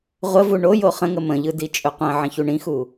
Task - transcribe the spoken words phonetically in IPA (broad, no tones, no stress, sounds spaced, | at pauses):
ʁʷ ə v u ɳ o j o χ ə̃ ŋ ə m ə̃ ʎ ɯ d i t͡ʃʼ ɵ qʷ ə̃ ʕ ə̃ ç u ɳ ĩ x u